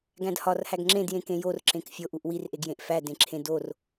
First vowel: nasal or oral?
nasal